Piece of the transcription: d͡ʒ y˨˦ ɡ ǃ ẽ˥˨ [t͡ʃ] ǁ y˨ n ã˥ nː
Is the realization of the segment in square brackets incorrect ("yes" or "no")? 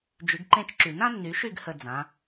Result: no